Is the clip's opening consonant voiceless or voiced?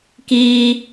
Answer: voiceless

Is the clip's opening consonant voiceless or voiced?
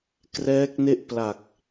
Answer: voiceless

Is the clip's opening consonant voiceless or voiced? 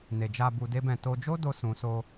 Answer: voiced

